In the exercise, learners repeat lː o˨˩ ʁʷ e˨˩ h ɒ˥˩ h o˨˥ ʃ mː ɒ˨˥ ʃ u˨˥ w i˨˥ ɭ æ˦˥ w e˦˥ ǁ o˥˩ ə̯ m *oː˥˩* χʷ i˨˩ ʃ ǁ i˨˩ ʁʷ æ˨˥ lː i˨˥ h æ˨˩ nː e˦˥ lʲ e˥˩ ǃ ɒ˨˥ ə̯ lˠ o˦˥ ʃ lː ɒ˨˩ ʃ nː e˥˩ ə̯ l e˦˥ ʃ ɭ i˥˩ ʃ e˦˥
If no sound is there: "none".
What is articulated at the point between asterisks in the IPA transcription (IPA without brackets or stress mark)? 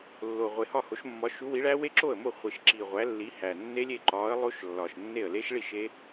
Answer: o˥˩